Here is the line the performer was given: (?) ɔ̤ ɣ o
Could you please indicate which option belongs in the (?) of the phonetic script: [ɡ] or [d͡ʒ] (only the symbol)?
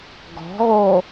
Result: ɡ